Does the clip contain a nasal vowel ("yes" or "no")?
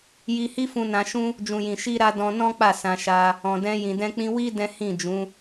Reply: yes